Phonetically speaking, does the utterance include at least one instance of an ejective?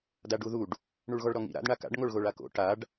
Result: no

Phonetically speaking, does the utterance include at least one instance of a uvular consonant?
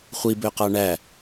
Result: yes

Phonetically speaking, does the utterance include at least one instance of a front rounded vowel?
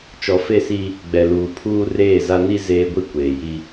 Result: no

